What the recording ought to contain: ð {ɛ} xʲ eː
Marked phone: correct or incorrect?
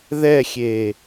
correct